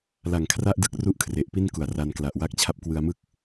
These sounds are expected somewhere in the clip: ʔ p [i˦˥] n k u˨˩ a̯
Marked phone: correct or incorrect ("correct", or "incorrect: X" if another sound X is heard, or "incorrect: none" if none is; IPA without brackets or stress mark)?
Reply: incorrect: i˥˩